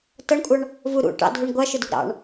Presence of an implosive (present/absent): absent